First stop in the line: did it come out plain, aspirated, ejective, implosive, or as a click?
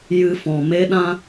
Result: implosive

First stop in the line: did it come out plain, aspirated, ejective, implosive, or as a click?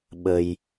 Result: implosive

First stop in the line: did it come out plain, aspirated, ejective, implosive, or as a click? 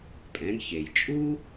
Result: ejective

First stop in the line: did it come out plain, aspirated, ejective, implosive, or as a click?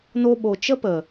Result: implosive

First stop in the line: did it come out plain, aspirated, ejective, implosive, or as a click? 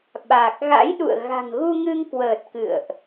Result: implosive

